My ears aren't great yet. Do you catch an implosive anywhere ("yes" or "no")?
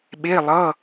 yes